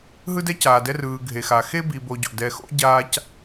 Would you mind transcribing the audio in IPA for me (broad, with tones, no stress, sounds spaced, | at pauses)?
ɦ ɯ˥ d ɛ˥ c aː˨ d ɛ˦ r ɯː˨ ɡʱ e˩ x a˩ x e˥ b i˨ b o˨ ɟ o̰˩ d ɛ˨ x o̰˥ ɟ aː˦ c